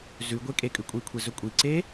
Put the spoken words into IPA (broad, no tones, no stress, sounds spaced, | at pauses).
z ʉ ɡʷ e kʼ e kʼ ʉ kʷʼ i kʷʰ e z ɵ kʷʼ i ǀ e